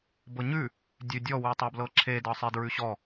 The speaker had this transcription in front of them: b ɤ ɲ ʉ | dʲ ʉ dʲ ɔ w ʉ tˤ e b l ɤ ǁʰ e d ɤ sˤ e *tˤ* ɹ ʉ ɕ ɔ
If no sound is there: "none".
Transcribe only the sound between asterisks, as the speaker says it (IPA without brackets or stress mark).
d